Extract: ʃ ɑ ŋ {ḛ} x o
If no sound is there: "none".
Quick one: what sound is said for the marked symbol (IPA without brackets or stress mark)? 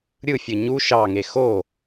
e